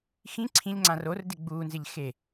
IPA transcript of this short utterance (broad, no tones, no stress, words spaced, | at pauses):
xĩ ǀʰĩʎŋ͡ǀã rordɪ ɡ͡bunzɪʎ xe